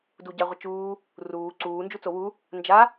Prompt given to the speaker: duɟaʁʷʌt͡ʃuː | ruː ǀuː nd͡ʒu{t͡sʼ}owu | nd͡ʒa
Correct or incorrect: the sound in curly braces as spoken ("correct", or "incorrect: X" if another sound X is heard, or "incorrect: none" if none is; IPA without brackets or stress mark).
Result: incorrect: t͡s